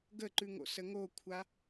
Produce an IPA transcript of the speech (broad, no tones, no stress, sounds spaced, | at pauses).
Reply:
ɡ ə ǃ ʉ ŋ o̰ s ə ŋ o kʷʰ a